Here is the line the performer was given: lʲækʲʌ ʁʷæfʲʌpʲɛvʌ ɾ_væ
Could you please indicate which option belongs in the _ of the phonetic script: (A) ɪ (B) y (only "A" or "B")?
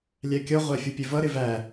A